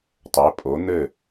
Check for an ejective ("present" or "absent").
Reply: present